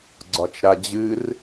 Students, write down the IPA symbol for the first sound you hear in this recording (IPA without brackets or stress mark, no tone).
ɡ͡ǀ